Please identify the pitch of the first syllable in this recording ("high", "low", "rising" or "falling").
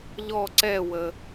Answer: falling